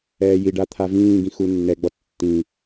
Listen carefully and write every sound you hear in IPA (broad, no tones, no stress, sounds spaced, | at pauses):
ɛː j i ɖ a t̪ʰ a v ĩː ɡ ĩ x u nː ɛ ɡ͡b ɔ tː ĩ